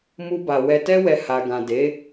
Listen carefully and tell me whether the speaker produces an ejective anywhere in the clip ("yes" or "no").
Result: no